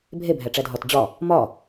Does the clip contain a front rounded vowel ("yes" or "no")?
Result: no